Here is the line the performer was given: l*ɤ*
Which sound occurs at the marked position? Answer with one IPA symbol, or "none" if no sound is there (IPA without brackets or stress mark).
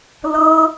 ɤ